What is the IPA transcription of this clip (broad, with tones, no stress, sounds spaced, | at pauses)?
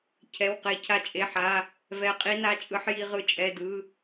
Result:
cʰ ɛ˧˥˧ w q e˦˥ cʰ a˦˥ t͡ʃʼ e˧˥˧ ħ a˧˥˧ | v ɛ˦˥ qʼ i˦˥ n a˧˥˧ t͡ʃʼ ɯ˦˥ ħ j i˦˥ ʁ ɯ˦˥ t͡ʃʼ ɛ˧˥˧ d ɯ˧˥˧